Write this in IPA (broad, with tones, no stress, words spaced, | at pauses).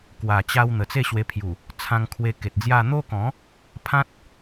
kwa˨˩t͡ɕa˧w n̪ə˨˩t͡se˥˧ɕwe˧pʰju˨˩ | t͡sʰã˧ŋkʰwe˧ke˨t̚d͡zja˥˧ n̪o˦kɔ̃˨˦ | pʰã˦t̚